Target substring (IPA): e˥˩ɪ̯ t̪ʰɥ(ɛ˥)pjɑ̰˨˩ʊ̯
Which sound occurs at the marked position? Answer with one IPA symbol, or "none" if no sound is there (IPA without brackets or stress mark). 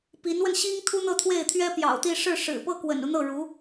ɛ˥